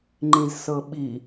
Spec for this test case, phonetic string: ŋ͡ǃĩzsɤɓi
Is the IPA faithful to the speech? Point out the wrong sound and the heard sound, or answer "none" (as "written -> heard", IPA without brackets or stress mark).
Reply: none